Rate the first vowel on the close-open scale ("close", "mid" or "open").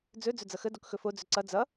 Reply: mid